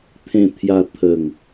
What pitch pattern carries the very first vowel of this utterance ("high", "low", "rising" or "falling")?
low